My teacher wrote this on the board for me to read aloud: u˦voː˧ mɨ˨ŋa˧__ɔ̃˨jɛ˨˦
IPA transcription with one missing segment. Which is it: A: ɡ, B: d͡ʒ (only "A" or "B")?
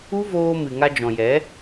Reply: B